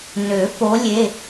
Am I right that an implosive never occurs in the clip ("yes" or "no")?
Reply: yes